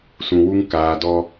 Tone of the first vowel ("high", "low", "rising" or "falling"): low